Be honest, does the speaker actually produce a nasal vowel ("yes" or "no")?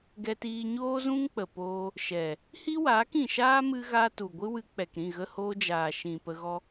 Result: yes